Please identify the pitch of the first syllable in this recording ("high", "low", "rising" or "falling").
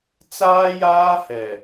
high